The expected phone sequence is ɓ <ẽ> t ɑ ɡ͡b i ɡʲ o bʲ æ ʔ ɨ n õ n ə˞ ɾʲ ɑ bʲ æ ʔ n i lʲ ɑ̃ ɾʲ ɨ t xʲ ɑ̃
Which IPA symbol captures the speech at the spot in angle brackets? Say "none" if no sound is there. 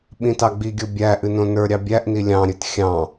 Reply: ĩ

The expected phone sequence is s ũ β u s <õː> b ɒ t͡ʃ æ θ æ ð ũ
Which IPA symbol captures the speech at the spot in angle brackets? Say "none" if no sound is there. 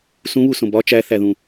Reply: õ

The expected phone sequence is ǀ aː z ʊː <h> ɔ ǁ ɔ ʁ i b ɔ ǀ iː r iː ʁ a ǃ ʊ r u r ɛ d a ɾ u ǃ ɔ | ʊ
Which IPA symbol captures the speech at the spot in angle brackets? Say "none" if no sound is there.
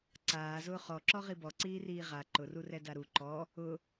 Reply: χ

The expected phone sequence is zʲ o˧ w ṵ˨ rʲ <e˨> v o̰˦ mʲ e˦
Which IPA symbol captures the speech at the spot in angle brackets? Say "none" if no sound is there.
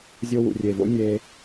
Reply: e˨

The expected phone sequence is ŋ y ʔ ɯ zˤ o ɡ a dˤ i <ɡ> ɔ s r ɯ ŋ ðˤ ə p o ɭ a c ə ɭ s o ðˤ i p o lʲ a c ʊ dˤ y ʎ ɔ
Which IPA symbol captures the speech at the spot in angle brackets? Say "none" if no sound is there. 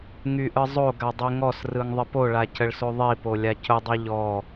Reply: ŋ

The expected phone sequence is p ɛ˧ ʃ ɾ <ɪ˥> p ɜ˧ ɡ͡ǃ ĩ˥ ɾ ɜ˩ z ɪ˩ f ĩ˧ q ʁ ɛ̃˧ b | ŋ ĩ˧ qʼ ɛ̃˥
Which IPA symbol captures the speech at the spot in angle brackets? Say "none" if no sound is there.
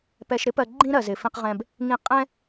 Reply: ɪ˥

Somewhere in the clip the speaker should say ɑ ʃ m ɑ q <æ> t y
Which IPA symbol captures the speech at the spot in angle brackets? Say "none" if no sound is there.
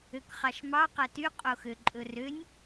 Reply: æ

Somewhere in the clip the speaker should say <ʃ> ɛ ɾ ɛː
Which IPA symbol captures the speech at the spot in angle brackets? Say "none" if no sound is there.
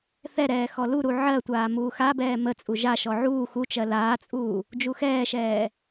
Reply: θ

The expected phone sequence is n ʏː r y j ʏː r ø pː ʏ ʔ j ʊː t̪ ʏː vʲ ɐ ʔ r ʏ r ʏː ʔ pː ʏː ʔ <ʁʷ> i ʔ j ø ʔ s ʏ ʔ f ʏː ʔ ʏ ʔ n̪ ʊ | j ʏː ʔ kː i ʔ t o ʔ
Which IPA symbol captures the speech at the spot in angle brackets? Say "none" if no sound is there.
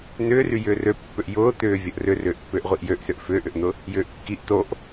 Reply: ʁʷ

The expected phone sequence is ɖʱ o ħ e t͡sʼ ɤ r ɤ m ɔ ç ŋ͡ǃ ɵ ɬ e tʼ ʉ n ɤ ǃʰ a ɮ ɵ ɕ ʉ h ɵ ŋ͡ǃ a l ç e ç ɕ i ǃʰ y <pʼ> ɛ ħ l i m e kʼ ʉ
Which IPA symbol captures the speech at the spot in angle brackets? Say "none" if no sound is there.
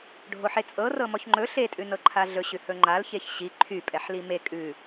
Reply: pʼ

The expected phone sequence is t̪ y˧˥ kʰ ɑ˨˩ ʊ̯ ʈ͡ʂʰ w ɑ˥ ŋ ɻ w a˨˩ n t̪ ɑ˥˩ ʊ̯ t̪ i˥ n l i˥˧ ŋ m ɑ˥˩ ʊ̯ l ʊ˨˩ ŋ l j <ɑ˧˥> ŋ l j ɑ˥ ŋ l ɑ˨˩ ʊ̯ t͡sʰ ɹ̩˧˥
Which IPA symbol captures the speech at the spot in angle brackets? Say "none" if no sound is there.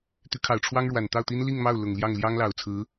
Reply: ɑ˥˩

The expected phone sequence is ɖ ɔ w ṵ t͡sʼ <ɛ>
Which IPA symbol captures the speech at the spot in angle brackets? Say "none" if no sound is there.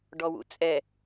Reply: ɛ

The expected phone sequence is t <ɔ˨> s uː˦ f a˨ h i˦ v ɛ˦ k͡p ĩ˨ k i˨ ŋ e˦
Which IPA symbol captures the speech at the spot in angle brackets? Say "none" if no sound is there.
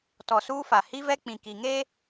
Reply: ɔ˨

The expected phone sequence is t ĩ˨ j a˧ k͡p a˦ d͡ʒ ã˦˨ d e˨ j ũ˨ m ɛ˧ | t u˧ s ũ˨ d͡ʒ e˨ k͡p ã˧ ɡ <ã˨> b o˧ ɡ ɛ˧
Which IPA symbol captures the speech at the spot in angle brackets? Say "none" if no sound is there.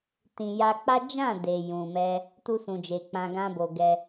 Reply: ã˦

